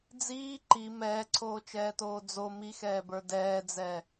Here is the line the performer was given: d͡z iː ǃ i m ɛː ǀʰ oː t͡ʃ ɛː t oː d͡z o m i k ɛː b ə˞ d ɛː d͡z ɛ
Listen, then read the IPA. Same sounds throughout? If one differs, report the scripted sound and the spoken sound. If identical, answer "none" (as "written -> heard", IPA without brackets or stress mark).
k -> x